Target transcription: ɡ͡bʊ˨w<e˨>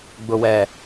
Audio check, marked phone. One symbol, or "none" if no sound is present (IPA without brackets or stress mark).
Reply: ɛ˨